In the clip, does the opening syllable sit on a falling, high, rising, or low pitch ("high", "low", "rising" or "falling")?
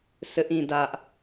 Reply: high